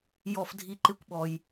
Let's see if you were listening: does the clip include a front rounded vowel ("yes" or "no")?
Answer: no